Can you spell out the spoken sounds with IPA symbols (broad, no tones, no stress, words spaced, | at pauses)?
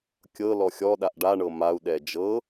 kʲɤ lɔxʲɔɗaʔ ɖaɳɤ mau̯ɗɛ d͡ʒɤ